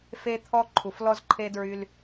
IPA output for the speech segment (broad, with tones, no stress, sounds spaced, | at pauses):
f e˦ t̪ʰ ɔ˦ ǃʰ u˩˧ f l ɔ˦ z ǃʰ e˦ d ɹ y˦ l